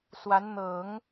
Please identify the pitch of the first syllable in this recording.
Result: rising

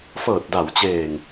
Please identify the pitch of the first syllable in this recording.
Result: low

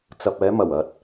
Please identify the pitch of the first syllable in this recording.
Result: low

